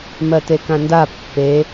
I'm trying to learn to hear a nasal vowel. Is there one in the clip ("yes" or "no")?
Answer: yes